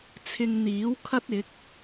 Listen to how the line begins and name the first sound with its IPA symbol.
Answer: t͡sʰ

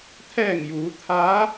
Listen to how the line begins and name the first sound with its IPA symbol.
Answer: t̪ʰ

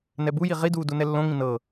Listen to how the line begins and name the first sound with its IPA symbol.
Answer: n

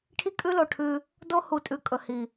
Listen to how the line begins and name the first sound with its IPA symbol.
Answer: ʈʰ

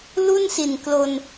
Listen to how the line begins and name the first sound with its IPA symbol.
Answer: l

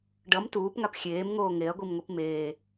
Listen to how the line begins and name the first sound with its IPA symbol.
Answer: ɖ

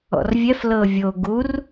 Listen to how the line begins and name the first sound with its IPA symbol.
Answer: ɔ̰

